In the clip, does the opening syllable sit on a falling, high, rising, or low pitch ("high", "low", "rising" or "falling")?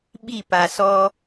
falling